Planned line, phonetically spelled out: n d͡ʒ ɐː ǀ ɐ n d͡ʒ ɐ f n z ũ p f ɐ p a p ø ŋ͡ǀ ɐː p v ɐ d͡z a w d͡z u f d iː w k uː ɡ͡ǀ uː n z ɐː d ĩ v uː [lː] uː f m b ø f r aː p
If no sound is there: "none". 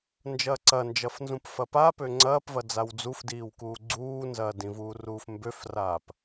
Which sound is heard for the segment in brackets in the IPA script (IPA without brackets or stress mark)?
r